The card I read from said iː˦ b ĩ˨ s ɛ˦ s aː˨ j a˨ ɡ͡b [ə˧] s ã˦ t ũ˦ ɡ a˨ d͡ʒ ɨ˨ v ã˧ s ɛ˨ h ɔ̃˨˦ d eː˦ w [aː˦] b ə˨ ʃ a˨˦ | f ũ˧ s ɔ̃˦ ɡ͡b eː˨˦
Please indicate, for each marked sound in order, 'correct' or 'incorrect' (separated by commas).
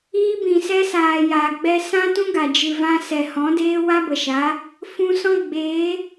incorrect, incorrect